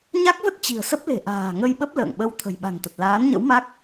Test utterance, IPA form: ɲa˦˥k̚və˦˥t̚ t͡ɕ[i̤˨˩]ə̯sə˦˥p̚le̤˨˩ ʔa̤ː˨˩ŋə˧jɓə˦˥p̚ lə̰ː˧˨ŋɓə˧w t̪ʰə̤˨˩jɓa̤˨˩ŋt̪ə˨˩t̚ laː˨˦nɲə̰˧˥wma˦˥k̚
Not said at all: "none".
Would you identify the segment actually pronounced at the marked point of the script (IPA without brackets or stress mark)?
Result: i̤˨˩